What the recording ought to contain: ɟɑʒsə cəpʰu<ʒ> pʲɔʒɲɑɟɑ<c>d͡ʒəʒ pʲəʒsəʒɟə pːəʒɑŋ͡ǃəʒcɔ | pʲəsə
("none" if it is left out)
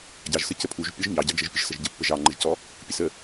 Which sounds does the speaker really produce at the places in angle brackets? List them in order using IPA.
ʒ, none

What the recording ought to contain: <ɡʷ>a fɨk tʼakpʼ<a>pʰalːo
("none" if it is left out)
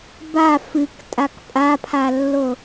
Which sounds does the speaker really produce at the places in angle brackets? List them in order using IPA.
b, a

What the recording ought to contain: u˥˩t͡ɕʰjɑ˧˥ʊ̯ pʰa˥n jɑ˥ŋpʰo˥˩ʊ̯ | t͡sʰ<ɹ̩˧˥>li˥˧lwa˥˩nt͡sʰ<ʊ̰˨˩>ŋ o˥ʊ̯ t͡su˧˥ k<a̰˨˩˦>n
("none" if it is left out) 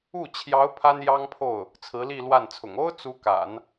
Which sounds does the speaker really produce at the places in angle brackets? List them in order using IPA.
ɹ̩˧˥, ʊ̰˨˩, a̰˨˩˦

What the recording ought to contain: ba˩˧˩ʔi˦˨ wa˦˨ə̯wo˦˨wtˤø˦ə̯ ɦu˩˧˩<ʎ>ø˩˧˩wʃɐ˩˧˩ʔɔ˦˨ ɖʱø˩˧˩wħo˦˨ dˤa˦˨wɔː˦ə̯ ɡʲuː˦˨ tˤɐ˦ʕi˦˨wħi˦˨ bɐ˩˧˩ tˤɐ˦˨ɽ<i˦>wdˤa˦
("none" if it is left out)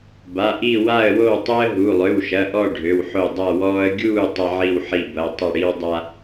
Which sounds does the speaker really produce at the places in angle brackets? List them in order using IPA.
lˠ, i˦

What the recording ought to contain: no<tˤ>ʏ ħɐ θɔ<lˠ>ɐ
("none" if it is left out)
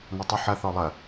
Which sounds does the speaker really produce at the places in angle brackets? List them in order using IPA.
tˤ, lˠ

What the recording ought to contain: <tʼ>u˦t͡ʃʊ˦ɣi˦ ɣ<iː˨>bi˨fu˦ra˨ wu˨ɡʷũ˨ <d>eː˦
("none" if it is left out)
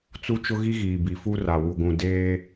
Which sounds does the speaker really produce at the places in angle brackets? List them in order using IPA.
t͡s, iː˨, d

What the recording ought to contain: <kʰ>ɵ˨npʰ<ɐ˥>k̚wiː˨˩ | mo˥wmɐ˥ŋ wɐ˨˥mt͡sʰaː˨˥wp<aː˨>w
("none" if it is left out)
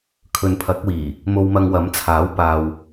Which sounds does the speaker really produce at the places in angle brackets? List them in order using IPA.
kʰ, ɐ˨˥, aː˨

